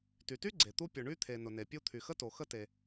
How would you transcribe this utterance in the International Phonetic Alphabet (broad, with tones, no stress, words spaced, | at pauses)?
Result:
ty˩ty˥ ɡ͡ǀe˩t̪u˥ pʲʊ˩ɳy˥t̪ʰe˩ nʊ˩ne˩pʲu˥ t̪ʰy˩xə˥to˩ xə˥te˩